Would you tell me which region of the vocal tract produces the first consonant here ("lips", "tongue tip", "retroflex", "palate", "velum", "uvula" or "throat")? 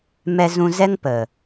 lips